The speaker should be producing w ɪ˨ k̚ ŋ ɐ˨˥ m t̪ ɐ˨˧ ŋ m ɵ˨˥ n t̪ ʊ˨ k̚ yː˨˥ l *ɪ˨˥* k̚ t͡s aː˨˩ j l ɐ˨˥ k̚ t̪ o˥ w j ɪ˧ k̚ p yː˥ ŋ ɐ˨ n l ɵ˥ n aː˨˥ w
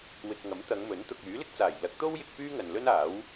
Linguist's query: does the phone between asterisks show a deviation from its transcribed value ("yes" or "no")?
yes